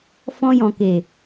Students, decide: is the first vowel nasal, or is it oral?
nasal